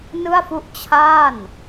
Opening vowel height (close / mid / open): close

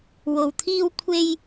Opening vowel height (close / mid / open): mid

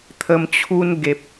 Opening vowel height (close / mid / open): mid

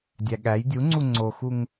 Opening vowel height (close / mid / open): open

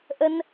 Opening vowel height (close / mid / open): mid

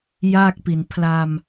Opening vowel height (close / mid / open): open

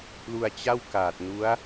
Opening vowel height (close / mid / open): close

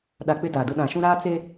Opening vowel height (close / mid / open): open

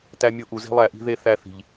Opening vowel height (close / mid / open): open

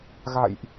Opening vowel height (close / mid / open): open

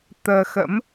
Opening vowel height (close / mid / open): mid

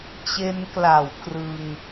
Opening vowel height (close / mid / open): mid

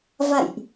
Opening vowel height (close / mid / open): open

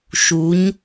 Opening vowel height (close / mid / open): close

